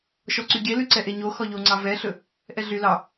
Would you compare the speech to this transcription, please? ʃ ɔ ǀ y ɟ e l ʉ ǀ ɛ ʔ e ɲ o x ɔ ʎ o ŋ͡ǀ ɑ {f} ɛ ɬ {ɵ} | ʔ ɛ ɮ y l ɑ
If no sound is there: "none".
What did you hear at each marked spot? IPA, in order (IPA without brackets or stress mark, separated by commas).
v, ɵ